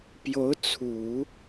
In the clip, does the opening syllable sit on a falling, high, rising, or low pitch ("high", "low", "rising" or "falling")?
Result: rising